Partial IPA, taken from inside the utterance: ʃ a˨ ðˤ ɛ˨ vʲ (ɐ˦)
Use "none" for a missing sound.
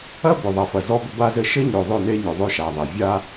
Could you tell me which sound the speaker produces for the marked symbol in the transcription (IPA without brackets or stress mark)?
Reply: a˦